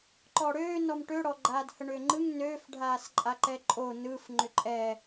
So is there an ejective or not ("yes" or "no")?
yes